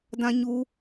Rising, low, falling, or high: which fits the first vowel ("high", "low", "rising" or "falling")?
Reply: high